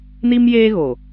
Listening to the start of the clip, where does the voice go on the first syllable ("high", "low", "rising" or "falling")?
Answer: high